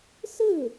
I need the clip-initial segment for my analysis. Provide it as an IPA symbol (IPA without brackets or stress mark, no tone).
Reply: s